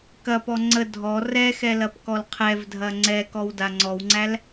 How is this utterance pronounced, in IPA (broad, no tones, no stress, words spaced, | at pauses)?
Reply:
kɐpɔ ŋ͡ǀə dʱɔ rɛxɛ lɐpkɔlqʰɛvdʱɐ ŋ͡ǀɛ kɔwdaŋ͡ǀɔwŋ͡ǀæl